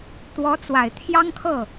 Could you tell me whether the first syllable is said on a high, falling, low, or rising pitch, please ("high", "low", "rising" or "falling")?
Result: rising